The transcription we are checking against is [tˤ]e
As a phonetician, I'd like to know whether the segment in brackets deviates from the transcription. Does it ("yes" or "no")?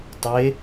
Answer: no